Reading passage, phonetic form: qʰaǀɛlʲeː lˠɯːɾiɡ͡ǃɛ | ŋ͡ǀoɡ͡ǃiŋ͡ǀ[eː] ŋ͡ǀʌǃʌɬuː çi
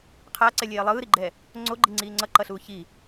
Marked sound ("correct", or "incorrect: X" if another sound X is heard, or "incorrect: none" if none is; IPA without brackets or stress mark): incorrect: iː